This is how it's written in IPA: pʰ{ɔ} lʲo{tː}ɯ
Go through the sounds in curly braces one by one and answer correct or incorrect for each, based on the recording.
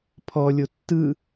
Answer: correct, correct

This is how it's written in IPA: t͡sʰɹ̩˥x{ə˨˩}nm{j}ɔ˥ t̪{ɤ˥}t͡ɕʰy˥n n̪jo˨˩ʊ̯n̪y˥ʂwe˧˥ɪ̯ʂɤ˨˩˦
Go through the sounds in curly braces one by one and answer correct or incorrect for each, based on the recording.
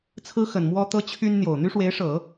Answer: correct, incorrect, correct

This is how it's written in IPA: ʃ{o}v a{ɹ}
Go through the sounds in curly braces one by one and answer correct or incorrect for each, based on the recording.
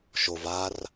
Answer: correct, incorrect

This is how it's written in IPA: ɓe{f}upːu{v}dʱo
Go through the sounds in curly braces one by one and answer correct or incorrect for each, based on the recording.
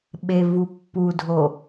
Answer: incorrect, incorrect

